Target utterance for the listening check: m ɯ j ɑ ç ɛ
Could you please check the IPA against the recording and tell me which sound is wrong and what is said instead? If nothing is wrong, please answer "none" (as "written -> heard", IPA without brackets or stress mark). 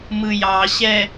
ç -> ɕ